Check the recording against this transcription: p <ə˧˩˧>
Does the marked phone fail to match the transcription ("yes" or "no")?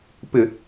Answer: yes